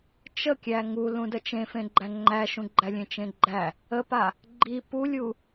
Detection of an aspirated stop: absent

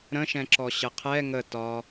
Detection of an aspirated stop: present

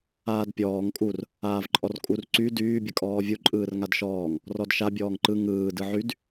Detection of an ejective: present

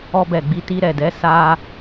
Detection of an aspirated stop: absent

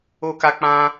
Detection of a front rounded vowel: absent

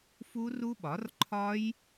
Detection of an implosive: present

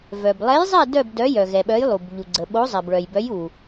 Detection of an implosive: present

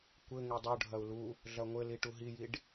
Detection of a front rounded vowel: absent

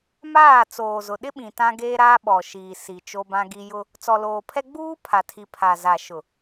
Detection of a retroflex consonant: absent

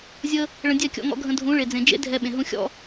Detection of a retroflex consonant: present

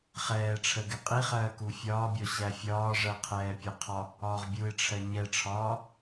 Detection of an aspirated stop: present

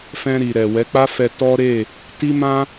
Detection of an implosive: absent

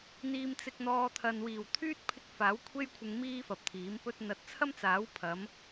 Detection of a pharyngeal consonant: absent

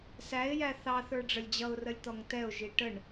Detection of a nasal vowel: absent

